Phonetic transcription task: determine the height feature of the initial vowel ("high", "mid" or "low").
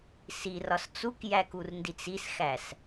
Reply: high